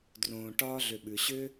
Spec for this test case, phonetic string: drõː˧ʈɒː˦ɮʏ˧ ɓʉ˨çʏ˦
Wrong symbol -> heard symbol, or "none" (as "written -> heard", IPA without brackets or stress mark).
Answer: ç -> ɕ